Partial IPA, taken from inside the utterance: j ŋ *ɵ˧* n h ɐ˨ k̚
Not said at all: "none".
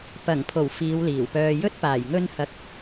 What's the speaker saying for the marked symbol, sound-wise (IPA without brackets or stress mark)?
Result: ɵ˧